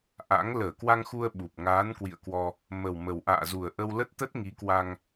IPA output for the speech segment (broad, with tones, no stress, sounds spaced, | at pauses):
ʔ a̰˧˥ ŋ l əː˧˩ k w a˧ ŋ x u˧ ə̯ ɓ u˨˩ p̚ ŋ aː˨˦ n k w ḭ˧˨ ə̯ k w ɔ˧ | m ə˨˩ w m ə˨˩ w ʔ a̰ː˧˨ z u˨˩ ə̯ ʔ ə˧ w l ə˦˥ t̚ t̪ ə˦˥ t̚ ŋ i˨˦ k w a˧ ŋ